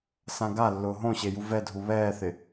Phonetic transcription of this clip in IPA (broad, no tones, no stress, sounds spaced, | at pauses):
s ã ɡ a lː ʊː ɦ õ ɕ e j u v ɛ dʱ u β ɛː θ ɪ